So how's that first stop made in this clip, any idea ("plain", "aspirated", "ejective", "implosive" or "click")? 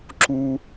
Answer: click